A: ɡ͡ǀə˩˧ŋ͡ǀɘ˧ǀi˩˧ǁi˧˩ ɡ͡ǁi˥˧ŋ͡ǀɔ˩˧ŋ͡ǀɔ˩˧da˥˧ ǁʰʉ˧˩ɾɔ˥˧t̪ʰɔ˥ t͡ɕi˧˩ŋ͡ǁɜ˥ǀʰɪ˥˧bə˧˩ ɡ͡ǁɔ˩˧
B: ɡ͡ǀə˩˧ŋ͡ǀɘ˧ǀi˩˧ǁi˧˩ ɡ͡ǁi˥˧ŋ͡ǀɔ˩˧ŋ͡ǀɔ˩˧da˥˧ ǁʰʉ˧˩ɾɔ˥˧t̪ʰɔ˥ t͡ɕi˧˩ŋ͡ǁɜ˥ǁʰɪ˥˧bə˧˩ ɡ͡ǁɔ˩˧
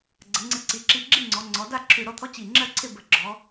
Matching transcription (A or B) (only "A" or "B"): A